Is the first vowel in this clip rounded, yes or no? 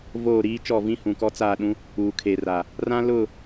yes